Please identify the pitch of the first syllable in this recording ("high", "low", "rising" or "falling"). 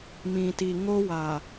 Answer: low